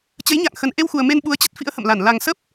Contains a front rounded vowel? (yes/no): no